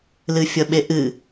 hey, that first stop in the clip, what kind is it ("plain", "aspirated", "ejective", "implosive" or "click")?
implosive